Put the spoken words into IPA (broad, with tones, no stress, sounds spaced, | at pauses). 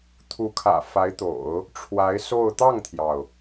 t̪ʰ u˧˥ kʰ ä̰˨˩ f a˧˥ ɪ̯ t̪ o̰˨˩˦ ʊ̯ | ʈ͡ʂʰ w a˧˥ ɪ̯ s o˥˧ ʊ̯ t̪ ɑ˥˩ ŋ t̪ʰ j ɑ˩ ʊ̯